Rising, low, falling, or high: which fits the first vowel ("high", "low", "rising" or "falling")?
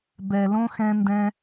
low